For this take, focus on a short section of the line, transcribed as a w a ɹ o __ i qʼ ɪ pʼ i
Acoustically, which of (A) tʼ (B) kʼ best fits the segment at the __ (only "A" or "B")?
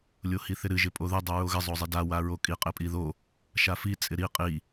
B